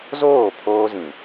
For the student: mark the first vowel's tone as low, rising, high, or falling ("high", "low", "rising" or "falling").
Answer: falling